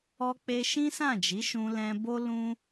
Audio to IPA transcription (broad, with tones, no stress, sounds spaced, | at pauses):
ɔ˧ k͡p e˧ ʃ ĩ˦ s ã˦˨ d͡ʒ i˨˦ ʃ ũ˧ l ɛ̃˧ b o˦ l ũ˦